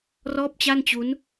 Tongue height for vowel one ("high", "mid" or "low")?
mid